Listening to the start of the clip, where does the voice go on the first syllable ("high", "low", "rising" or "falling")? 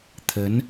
rising